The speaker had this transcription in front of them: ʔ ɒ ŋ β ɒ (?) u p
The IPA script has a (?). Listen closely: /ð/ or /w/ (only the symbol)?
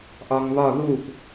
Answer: ð